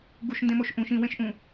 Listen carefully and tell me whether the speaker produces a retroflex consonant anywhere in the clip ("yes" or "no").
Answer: no